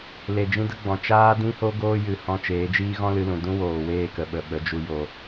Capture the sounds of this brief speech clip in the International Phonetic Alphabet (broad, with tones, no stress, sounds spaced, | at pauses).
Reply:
l e˨ d͡ʒ ĩ˦ d ə˦ ɡ͡b ɔ̃˨ t͡ʃ aː˦ d ĩ˦ h o˦ ɡ oː˦ j ɨ˨ h ɔ̃˧ t͡ʃ eː˨˦ d͡ʒ iː˦ ɣ ɔ̃˦ l ɨ˧ l ũ˨ d ũ˦ w oː˨ w eː˦˨ k ə˨ ɓ ə˨ ɓ ə˨˦ d͡ʒ u˧ j o˨